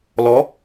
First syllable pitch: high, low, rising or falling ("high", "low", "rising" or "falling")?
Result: rising